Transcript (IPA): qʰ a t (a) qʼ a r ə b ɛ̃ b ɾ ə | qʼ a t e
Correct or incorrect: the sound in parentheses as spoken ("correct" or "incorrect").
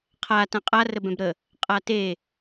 incorrect